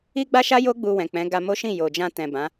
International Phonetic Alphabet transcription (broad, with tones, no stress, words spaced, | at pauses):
i˦ɡ͡ba˦ʃa˦jo˦ ɡ͡bu˧wɛ̃˨k͡pɛ̃˨˦ ɡa˧mo˦ ʃĩ˦˨jo˨d͡ʒã˧ tɛ̃˨bã˨˦